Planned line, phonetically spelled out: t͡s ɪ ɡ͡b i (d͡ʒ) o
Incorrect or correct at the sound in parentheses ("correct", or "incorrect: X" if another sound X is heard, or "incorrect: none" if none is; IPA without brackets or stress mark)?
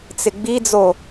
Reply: incorrect: d͡z